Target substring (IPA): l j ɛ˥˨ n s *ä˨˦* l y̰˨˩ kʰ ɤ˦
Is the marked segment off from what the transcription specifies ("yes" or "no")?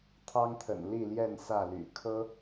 yes